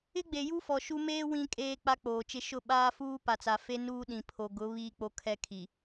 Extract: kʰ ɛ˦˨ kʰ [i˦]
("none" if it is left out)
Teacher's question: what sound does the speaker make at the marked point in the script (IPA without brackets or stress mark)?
i˨